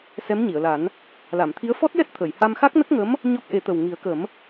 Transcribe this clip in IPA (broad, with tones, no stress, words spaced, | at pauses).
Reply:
sɛ˧˥mɲi˨˩˨ə̯la˨˩˦n | la˨˩˨mt̪ʰi˧˥ə̯ fɔ˦˥t̚jɛ˦˥t̚ t̪ʰə˨˩˨jha˧m xa˦˥k̚nə˦˥k̚ŋə˧˥m | ɲɔ˦˥k̚ʔe˨˩˦t̪ə˨˩w ŋi˨˩˦ə̯kə˨˩˦m